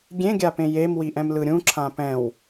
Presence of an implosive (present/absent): absent